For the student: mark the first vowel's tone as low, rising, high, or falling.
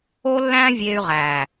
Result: high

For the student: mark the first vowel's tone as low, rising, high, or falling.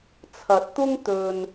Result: rising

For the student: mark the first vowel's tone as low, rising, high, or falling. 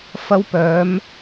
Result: high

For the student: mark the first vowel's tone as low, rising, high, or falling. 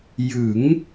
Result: rising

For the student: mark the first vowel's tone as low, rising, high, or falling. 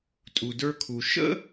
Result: low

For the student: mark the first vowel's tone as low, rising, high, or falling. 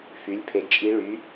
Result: rising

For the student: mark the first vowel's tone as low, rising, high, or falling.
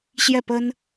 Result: falling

